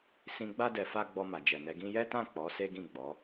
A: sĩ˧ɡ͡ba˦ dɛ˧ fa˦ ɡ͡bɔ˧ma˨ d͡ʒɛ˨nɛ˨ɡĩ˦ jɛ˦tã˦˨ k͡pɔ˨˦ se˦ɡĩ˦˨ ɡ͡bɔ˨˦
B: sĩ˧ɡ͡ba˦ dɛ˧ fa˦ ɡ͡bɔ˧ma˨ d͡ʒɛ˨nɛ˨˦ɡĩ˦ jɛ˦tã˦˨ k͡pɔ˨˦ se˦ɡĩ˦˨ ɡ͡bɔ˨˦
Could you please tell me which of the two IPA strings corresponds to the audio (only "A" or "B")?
B